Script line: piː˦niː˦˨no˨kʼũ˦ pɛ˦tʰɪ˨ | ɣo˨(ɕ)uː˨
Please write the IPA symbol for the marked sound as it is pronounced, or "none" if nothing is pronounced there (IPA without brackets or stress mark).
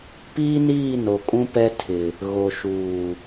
ʃ